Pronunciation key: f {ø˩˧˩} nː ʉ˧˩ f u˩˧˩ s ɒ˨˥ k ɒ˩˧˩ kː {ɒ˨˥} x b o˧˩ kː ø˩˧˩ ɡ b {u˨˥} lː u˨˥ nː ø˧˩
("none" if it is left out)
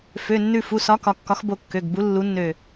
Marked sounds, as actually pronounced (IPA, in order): ø˩˧˩, ɒ˨˥, u˨˥

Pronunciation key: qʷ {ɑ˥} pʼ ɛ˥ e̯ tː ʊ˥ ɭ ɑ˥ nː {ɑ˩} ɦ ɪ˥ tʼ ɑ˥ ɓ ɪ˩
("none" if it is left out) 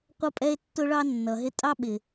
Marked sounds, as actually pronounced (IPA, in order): ʌ˥, ʌ˩

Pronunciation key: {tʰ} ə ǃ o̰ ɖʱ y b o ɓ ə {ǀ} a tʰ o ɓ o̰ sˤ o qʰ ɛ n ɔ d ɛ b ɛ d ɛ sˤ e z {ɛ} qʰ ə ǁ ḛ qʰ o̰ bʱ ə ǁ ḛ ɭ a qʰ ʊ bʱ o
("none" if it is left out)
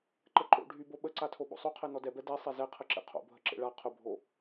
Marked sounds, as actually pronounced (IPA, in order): ǃ, ǀ, ɛ

